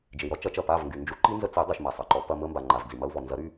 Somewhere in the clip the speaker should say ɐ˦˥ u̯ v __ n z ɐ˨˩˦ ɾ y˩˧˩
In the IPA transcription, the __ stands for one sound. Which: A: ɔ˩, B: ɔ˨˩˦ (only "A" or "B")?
A